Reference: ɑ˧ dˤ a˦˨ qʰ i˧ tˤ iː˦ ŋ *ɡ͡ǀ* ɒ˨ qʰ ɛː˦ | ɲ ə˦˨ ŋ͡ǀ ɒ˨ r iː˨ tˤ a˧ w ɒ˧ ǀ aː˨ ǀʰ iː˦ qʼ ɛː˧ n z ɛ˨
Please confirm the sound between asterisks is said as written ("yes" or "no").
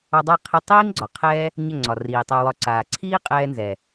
yes